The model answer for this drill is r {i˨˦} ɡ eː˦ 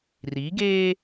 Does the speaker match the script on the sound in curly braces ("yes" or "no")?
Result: yes